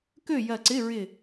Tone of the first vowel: falling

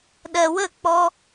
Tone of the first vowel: low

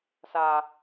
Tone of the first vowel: high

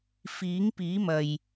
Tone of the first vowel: rising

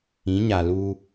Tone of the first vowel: rising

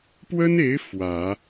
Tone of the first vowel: high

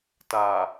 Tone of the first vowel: low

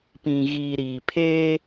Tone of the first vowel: low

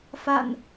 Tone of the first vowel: low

